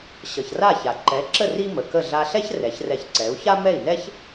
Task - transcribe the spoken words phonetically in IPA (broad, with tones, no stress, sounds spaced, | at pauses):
ɕ ʌ˩ ç r a˥˩ ç a˩ ǃ ɛ˩˥ ǁ ə˥˩ r i˥ m ə˩ k ə˥˩ ɮ a˧ ɬ ɛ˥ ç r ɛ˩˥ ç r ɛ˧ ç ǀ ɛ˩˥ u̯ ç a˥ m ɛ˥˩ i̯ n ɛ˥ ç